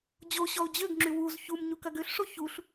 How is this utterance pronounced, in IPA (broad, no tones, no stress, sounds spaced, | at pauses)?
d͡ʑ o ɕ ɔ ʊ̯ d͡ʑ ø ɡ ŋ͡ǁ y w u z ç u m ɲ u k ɐ ɡ ø ɬ ʂ o ç u ɬ